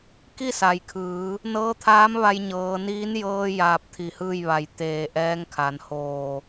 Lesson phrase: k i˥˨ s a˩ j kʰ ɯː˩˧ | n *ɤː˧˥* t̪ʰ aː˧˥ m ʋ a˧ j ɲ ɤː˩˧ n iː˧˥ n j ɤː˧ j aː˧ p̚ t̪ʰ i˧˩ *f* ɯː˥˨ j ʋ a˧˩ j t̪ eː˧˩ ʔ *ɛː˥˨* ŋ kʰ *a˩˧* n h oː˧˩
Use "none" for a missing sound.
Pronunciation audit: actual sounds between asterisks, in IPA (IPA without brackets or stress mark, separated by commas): ɤː˧˥, h, ɛː˧˥, a˩˧